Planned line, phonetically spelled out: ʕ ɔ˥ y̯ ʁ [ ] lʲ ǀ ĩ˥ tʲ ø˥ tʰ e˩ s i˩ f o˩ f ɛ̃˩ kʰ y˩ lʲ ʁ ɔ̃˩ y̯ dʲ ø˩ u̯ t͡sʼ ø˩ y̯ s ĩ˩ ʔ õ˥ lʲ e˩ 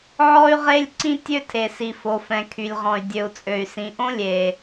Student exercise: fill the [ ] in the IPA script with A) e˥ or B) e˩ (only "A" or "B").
A